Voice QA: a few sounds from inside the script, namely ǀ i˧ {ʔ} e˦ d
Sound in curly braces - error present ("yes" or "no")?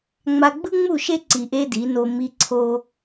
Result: no